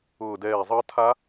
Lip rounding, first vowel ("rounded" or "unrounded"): rounded